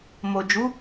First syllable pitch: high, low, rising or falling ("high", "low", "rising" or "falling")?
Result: low